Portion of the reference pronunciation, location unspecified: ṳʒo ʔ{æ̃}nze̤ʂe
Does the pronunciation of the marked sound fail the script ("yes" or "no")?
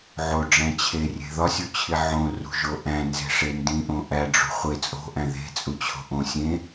no